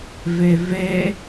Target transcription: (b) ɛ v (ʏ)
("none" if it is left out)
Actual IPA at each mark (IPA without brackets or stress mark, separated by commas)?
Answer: v, ɛ